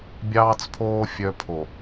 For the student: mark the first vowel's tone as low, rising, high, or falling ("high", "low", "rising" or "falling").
low